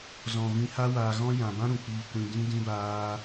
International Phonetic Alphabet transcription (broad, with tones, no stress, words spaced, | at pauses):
zɔ̃˨ vĩ˧ha˦waː˧ɣɔ̃˦ jã˨bã˦ ɾũ˨k͡piː˧kʷĩ˧ dĩ˦ dĩ˦baː˦